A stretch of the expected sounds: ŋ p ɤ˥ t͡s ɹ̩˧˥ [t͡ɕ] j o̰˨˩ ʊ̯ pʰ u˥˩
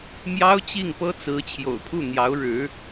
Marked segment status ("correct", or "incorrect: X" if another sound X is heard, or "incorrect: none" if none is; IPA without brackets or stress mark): incorrect: t͡ɕʰ